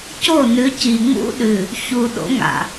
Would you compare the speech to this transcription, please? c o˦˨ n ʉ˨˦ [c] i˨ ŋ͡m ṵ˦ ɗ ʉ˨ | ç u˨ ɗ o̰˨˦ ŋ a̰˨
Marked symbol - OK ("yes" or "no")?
yes